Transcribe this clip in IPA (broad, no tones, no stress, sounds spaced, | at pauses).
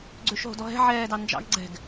ɡ͡ǀ ø ʃ ɦ o̤ d ɔ ɦ ɛ̤ ʕ ɛː d ɑ n d͡ʒ ɑ̰ ɡ ɡ͡ǀ ɛ̤ ɡ